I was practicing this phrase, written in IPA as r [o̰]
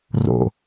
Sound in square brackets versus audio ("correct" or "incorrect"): correct